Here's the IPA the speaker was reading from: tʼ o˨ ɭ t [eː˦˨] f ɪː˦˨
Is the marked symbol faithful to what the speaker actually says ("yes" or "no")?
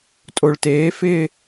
no